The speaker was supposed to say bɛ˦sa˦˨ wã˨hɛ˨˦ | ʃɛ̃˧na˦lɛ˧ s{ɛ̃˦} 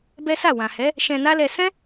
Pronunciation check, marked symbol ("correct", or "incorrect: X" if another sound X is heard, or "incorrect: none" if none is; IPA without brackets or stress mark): correct